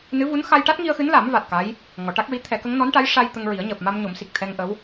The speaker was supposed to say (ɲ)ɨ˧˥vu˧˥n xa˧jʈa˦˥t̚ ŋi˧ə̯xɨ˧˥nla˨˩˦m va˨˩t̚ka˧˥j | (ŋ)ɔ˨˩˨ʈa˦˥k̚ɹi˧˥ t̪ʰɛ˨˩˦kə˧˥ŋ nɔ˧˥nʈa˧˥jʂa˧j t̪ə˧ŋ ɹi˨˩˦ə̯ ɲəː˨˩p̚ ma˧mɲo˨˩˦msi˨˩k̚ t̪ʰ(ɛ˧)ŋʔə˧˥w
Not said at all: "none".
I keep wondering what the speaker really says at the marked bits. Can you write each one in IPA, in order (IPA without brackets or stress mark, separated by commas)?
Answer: n, ŋ, ɛ˧